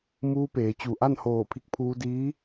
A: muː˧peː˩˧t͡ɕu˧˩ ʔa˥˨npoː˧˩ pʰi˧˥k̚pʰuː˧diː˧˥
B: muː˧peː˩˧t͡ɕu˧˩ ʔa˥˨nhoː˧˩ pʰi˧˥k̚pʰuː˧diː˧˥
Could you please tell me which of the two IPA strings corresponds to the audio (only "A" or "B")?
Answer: B